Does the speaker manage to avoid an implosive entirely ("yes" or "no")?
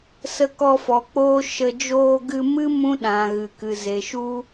no